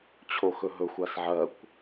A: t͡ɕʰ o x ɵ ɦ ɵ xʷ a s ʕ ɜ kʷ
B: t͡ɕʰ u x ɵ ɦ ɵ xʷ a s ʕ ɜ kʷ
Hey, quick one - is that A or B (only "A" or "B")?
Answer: A